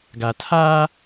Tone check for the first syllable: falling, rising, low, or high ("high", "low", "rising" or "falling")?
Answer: low